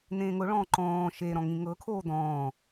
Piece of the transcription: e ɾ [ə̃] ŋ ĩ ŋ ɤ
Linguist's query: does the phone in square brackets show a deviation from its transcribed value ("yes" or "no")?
yes